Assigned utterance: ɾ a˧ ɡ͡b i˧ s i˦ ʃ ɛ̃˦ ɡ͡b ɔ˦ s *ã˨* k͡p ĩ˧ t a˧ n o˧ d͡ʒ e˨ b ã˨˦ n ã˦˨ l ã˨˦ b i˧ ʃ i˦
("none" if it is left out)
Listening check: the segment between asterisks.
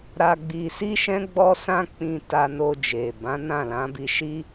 ã˦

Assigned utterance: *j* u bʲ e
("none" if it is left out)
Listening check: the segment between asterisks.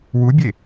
w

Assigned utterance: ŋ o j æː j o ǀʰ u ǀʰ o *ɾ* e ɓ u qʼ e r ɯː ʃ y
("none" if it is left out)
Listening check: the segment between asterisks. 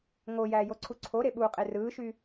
ɾ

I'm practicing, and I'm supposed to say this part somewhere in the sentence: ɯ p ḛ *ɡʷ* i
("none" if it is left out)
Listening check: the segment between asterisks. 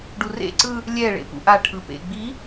ɡ͡b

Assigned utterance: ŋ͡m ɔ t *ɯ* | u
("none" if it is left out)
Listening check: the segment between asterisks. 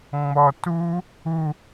u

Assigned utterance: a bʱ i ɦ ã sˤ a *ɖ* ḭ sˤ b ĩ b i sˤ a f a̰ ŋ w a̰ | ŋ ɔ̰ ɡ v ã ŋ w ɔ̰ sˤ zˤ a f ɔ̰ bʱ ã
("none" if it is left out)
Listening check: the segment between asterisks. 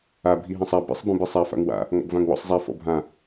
b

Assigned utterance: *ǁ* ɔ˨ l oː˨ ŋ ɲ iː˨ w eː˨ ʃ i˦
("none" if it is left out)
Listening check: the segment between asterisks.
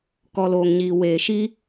k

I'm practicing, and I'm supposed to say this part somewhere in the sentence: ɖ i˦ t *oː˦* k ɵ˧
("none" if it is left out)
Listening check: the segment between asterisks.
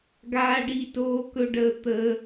oː˦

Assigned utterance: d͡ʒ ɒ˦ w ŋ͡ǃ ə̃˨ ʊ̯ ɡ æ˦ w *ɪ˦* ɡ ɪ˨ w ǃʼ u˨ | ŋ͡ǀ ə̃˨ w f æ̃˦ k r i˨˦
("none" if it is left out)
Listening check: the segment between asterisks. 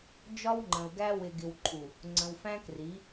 ɪ˨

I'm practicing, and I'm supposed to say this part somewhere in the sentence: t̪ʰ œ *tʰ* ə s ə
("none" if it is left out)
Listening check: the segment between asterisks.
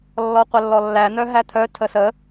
tʰ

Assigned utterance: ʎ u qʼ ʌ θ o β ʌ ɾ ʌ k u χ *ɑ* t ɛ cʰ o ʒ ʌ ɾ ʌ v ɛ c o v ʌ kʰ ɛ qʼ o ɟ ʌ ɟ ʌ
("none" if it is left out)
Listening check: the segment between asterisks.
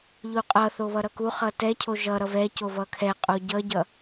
ʌ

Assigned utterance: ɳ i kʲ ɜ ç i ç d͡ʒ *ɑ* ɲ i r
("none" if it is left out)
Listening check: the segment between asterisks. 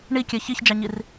ɑ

